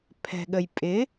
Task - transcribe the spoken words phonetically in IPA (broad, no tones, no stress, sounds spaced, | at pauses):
pʰ ɛ̤ ɠ ə j pʼ ɪ